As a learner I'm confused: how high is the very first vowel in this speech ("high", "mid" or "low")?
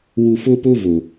high